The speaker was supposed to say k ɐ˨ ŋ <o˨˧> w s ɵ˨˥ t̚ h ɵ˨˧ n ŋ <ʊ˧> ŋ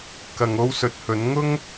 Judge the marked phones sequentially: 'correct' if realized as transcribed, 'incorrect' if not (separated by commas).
incorrect, incorrect